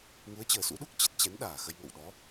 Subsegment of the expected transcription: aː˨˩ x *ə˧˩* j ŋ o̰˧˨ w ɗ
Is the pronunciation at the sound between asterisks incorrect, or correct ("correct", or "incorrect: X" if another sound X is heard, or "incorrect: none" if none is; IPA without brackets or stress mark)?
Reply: incorrect: ə˧